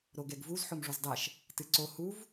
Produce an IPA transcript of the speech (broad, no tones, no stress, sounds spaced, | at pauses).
ɾ o ɡ ɛ ɡ v u z ħ o m ʐ o z dˤ ɛ ʃ | t ɨ ǀ o h u v